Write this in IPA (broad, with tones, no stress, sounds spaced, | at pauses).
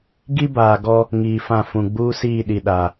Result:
ɡ i˦ b aː˨ ɡ ɔ˦ | ŋ iː˨ f ã˦˨ f ũ˨ ɡ͡b uː˦ s iː˦˨ ɗ i˨ ɗ a˨